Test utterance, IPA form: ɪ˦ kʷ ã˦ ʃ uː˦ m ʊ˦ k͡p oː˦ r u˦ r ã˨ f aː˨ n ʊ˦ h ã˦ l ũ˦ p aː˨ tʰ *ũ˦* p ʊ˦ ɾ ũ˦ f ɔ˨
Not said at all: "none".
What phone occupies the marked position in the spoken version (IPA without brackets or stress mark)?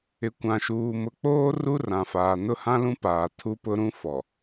u˦